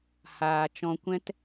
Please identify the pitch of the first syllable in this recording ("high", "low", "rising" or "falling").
low